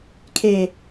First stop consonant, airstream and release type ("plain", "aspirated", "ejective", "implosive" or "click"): aspirated